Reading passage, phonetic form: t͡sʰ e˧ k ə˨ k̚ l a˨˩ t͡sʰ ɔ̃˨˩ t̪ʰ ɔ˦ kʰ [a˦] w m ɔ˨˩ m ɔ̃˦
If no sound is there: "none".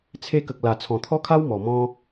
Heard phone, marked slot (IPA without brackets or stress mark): a˦